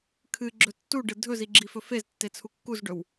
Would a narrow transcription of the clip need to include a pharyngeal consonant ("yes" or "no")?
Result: no